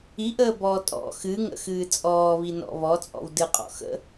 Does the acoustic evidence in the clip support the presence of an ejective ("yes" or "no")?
yes